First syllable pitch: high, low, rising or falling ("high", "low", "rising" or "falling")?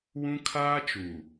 high